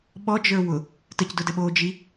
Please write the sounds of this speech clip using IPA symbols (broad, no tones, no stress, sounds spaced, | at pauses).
ɓ ɔ d͡ʒ ə˞ w ʊ | t ə c d ʊ d ə ɓ oː d͡ʒ i